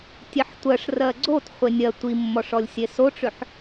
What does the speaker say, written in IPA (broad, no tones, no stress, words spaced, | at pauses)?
tʲeħtʷɜʂ rɜɡ͡ǀot χʷenʲɜ tʷimːɔʂɔlʲ sʲesoʈ͡ʂʏħ